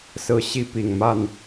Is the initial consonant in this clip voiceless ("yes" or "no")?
yes